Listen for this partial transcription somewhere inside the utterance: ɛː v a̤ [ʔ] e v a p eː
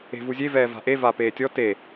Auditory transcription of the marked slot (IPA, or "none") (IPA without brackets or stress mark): ʔ